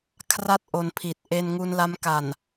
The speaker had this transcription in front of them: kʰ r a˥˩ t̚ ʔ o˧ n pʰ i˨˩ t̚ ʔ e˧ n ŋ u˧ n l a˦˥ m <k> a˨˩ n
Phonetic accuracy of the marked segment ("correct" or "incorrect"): correct